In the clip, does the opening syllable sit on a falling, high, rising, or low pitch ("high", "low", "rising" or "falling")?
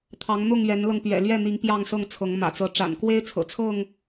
rising